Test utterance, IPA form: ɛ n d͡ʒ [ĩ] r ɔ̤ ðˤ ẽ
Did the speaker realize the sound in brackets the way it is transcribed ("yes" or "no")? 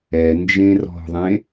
no